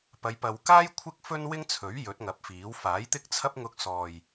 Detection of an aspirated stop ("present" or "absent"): present